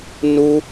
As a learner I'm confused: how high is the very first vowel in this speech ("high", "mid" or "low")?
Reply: high